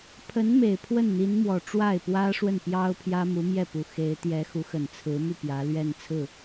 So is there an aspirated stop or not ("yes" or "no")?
yes